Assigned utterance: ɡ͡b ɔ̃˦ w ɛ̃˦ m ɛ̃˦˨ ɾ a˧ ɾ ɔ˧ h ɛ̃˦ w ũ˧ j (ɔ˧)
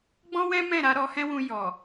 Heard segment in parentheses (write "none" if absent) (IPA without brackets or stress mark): ɔ˨